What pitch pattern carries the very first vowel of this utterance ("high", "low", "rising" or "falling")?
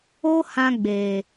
high